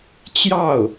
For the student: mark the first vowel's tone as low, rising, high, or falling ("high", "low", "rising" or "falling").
falling